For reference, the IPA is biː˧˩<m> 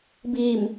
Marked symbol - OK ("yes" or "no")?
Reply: yes